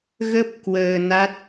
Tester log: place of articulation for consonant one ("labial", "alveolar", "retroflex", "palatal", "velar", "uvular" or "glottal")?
velar